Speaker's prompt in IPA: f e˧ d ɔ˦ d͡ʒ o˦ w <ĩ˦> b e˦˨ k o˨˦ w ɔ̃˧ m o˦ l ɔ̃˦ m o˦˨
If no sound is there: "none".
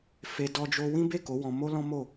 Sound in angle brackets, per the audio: ĩ˦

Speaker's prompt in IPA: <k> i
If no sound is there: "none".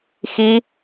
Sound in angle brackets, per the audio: x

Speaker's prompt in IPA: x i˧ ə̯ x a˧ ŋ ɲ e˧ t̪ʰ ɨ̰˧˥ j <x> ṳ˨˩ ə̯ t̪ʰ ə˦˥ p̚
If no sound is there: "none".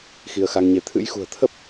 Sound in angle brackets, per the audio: x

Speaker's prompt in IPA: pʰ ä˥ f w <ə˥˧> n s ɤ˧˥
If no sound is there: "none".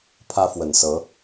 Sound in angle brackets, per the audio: ə˨˩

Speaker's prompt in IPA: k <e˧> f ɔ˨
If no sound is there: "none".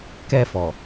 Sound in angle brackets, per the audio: ɛ˧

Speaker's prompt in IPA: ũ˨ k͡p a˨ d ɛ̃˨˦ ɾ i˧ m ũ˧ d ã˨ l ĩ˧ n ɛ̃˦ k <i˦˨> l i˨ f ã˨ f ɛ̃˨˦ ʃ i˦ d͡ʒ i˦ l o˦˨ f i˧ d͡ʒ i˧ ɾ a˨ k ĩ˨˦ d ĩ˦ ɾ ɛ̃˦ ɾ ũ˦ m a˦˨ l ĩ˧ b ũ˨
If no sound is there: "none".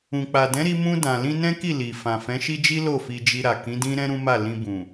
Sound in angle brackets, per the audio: i˦˨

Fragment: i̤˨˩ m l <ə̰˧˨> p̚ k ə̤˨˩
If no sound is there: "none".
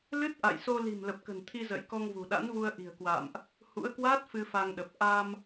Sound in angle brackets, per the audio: ə˨˩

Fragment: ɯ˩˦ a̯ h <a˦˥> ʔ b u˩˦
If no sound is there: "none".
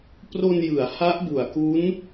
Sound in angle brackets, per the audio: a˦˥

